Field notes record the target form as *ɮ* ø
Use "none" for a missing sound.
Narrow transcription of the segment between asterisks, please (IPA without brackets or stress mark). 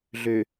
ɮ